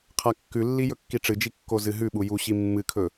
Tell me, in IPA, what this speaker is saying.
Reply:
qʰakːʉlːi jɵkːiʈ͡ʂɨd͡ʒi kːozɨɦʉɓu juɕi mːɨkʰɵ

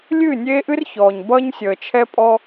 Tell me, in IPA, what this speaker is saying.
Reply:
lʲɨː˦˨nʲeː˦ʔɨ˦r çɔː˨ɲ bʌː˦ɲsʲəː˨t͡ʃʰɛ˦pʼɔ˦

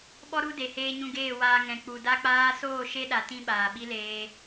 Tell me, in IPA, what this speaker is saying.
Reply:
ɓɔ˦ɾu˦ de˧heː˦ɲũ˦ ɡeː˦˨waː˧ ŋɛ̃˨k͡pu˨ da˦k͡paː˦ soː˦˨ ʃe˦ɗa˨ tĩ˦ ɓaː˨ɓi˦leː˧

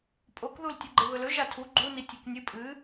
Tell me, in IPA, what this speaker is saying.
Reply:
pʼokðul tʲɨɡ͡ǃeβɵlɵ ʒatʰu ɡ͡ǃuni tʲeknʲɨ pʼɨ

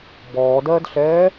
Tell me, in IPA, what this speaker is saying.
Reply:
bɔːdɜːdɬɛː

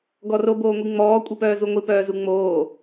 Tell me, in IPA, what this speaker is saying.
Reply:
ɡɔro boːŋʷiŋ͡mɔː kʷʼipœːzuŋʷi pœːzuŋ͡moː

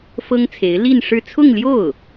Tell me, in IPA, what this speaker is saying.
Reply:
fɤ˥ŋt͡sʰe˧˥ɪ̯ li˥˧nʂɻ̩˥˧ t͡sʰʊ˥˧ŋljo˥˩ʊ̯

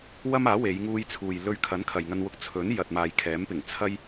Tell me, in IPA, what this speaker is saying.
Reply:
wɐ˥maː˨˥ we˨˧jŋuː˧jt͡sʰuː˨j lɵ˧ɥ kʰɐ˨˥n kʰɐ˨jŋɐ˧nwʊ˧k̚ t͡sʰɵ˨˥n jɐ˨t̚maː˨jkʰɛː˨˥mpɪ˨˩ŋ t͡sʰɐ˥j

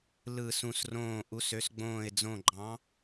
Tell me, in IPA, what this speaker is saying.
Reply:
lɯ˦˨sũ˦˨srõː˦˨ ʔu˨˥sø˨˥sɡ͡bõː˦˨ɪ̯d͡zõ˦˨ ɡ͡ǃɑ̃˨˥

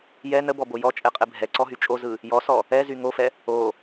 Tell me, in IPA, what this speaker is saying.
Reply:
jɛ nəbɔbo jɔt͡ʃʼɛqʼɛ bʱɛǀɔɦy t͡ʃʼozɯ | jɔsɔ | ɛzy ŋofɛ | o

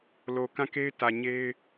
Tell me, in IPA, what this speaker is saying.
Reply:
lo˨ kã˦˨ke˦ɪ̯tä˨ ɲe˦ɪ̯

